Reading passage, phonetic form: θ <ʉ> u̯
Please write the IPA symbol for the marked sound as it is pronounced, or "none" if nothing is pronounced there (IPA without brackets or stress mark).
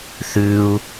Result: ʉ